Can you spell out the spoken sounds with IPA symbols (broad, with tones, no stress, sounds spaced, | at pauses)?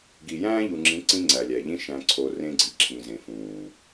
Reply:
ɡ i˨ j æ̃ː˦ ʎ u˨ ŋ͡ǁ ĩ˨˦ ǀ ĩ˦ ŋ͡ǀ æ˨ lʲ æ˨ ʎ ĩ˦ ʃ æ̃˨ ǀʰ o˨ r ẽ˦ ɡ͡ǀ i˨ ǁʰ ĩ˨ z ẽ˨ f ũː˨